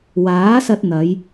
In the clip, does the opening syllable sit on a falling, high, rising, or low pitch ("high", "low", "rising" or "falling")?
rising